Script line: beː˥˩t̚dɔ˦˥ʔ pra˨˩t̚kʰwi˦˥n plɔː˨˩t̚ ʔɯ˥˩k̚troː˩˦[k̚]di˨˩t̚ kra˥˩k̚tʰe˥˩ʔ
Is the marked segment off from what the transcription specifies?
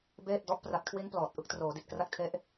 yes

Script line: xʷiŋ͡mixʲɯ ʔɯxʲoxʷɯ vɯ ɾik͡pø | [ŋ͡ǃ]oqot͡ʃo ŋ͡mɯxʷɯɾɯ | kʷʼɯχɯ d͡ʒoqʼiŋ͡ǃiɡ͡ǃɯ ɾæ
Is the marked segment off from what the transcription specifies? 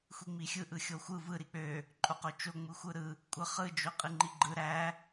yes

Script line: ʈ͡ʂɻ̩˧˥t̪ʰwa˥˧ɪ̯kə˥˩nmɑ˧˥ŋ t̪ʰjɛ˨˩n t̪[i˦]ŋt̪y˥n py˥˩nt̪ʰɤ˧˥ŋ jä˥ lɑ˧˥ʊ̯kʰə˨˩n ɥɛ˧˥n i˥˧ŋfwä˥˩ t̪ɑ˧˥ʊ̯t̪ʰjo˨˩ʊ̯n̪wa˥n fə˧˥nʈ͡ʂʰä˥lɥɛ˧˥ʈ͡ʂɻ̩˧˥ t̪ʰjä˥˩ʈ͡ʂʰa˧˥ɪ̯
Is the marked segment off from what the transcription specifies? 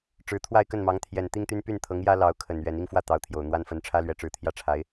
yes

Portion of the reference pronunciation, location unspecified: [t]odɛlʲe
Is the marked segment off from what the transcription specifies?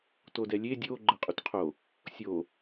no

